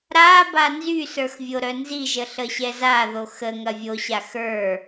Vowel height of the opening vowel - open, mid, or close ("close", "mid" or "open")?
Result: open